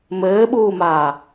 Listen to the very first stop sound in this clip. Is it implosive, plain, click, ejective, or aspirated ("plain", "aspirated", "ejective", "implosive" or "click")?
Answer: implosive